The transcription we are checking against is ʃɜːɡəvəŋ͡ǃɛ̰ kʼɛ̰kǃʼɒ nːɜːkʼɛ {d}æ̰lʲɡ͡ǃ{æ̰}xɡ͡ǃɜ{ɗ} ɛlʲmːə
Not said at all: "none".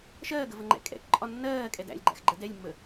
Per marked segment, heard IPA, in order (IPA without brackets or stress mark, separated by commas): d, æ̰, d